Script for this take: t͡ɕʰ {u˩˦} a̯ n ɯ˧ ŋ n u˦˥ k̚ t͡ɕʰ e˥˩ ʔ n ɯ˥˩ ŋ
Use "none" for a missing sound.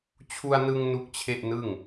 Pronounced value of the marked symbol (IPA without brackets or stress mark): u˧